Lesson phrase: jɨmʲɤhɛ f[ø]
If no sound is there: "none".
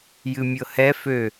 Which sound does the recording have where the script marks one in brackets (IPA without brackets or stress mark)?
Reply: ø